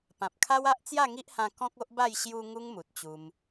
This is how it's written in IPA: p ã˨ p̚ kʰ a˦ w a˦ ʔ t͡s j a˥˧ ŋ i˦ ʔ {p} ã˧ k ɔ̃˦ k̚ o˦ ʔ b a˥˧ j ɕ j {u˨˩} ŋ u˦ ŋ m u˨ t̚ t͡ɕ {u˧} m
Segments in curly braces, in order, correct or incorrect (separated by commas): incorrect, incorrect, correct